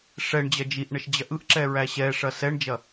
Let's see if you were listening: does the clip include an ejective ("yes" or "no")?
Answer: no